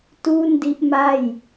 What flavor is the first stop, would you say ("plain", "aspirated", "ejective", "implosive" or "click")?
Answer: plain